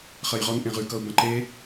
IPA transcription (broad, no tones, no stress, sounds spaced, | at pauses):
χ ɐ j ʁ ɔ n ʔ ẽ ʁ ʉ k ʌ u̯ b ɐ̃ ǃ e